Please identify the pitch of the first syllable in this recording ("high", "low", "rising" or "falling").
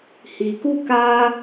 low